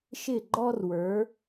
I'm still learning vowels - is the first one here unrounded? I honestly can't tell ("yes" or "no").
yes